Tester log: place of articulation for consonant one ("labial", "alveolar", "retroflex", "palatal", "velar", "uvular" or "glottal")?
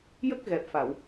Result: palatal